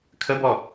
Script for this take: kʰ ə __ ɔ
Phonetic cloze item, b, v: b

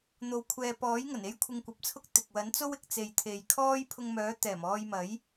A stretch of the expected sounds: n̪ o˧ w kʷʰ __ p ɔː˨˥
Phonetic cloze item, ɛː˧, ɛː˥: ɛː˧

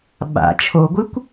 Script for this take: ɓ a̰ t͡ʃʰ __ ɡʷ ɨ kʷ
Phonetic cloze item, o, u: o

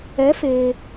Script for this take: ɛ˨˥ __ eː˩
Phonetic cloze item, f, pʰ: f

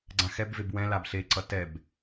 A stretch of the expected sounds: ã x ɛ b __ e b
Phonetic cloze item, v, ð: v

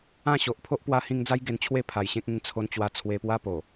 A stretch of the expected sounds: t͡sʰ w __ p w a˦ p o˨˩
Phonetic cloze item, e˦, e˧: e˧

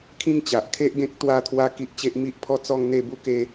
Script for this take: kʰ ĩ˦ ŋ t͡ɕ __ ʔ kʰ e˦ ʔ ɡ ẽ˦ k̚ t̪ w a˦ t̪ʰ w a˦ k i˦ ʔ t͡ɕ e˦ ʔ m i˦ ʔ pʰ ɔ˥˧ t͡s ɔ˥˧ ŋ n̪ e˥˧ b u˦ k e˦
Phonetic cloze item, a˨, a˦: a˨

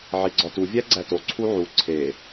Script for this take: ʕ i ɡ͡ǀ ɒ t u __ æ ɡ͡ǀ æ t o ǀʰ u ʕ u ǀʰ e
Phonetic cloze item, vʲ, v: vʲ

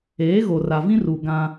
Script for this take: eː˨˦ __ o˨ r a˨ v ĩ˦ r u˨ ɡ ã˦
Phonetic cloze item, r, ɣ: ɣ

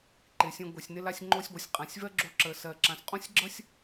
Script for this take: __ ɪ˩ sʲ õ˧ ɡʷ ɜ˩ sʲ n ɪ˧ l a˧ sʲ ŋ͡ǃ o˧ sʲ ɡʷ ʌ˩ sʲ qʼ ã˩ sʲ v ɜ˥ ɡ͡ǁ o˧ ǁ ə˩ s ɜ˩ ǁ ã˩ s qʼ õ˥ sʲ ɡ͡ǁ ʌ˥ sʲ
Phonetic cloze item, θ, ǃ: ǃ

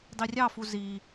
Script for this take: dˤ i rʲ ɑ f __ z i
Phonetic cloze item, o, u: u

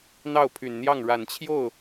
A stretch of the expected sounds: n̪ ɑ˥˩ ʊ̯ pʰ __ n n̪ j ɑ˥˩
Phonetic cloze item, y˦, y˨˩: y˨˩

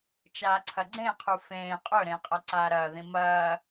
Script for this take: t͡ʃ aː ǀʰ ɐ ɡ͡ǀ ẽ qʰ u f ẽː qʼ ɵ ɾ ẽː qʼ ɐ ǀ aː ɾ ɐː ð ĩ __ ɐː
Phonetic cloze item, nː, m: m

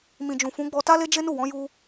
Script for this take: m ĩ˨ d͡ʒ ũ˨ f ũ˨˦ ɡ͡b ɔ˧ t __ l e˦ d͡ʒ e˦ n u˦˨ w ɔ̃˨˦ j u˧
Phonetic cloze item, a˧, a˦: a˦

